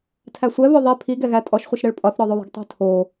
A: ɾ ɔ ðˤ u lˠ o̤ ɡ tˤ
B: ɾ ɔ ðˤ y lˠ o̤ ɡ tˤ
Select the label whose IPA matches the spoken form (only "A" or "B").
B